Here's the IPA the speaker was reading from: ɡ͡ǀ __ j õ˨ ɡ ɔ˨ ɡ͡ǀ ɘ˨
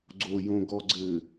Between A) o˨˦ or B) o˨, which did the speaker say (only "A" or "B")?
B